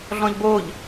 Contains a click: no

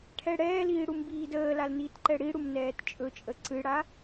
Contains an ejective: yes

